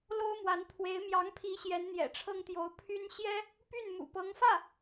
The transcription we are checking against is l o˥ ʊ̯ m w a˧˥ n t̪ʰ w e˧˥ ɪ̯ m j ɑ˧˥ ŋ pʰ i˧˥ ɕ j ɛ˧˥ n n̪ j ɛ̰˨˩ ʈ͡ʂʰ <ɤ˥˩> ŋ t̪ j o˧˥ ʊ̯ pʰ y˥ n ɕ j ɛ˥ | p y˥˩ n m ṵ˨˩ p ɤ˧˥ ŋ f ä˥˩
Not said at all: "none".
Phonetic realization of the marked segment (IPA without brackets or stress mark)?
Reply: ɤ˥